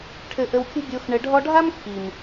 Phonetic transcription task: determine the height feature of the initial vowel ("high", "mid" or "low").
mid